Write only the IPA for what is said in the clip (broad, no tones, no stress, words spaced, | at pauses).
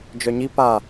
d͡ʒœɲi pa